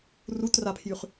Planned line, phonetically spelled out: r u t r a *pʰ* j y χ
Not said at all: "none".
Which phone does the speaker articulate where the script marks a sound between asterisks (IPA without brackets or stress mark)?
pʰ